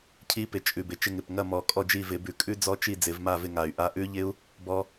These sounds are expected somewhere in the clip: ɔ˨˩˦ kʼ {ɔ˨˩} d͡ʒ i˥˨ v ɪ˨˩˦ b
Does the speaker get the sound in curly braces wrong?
yes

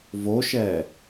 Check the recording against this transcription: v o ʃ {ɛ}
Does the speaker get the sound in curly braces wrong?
no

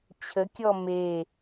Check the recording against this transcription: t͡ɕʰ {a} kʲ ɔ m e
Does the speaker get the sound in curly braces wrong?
yes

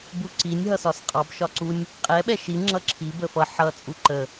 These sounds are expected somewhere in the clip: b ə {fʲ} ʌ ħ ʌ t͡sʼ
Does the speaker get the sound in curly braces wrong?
yes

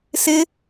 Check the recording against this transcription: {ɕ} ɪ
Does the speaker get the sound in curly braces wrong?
yes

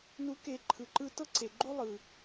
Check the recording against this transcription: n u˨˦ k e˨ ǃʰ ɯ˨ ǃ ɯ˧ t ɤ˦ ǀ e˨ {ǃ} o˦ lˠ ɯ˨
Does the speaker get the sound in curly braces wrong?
yes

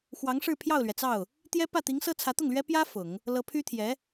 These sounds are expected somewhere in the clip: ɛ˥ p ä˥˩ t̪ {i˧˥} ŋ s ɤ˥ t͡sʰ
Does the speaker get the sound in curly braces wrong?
no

